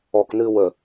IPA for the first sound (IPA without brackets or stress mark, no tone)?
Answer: ɔ